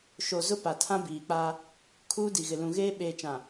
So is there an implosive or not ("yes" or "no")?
yes